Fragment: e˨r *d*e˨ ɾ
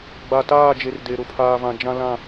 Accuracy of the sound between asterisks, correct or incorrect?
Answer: correct